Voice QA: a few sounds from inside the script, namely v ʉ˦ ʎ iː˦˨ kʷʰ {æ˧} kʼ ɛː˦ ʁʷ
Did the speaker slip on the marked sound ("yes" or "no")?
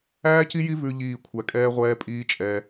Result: no